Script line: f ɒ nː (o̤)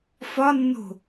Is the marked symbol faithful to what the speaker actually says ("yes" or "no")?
yes